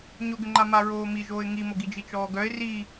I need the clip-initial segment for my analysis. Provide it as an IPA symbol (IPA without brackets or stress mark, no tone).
ɲ